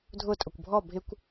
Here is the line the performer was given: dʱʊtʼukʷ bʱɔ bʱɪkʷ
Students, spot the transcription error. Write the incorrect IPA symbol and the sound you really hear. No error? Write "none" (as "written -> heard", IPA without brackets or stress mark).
u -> ʊ